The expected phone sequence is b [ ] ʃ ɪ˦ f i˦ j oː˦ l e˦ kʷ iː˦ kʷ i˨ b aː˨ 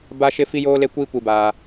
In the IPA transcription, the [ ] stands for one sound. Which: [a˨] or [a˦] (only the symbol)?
a˦